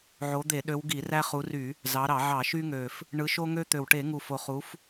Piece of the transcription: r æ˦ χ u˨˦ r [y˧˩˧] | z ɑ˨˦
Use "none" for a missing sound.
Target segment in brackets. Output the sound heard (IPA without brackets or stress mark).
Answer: y˧˩˧